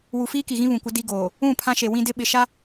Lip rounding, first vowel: rounded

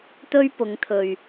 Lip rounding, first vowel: rounded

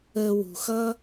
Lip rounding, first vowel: unrounded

